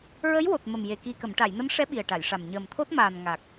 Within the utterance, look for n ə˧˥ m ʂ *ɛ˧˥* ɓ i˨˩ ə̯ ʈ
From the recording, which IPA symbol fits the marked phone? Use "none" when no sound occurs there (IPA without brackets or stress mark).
ɛ˧˥